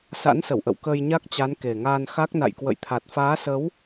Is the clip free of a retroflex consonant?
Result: yes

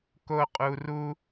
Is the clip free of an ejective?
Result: no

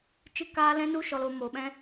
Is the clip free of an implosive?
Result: no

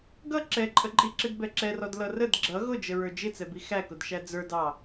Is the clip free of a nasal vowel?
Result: yes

